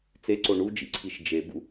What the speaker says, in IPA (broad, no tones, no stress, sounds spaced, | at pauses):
t͡s e ǀ o ɳ u d͡ʒ ḭ ǀʰ i ʃ d͡ʒ e b ṵ